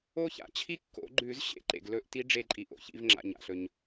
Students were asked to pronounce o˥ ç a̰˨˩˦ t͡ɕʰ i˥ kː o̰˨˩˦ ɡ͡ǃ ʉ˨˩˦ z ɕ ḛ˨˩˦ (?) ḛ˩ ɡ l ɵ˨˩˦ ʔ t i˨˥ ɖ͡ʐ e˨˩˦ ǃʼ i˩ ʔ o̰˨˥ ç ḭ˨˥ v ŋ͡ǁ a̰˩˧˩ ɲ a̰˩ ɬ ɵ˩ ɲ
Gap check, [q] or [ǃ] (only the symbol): ǃ